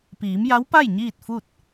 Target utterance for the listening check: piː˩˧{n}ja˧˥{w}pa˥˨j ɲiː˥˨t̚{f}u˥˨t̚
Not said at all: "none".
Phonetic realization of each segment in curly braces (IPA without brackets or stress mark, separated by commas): m, w, f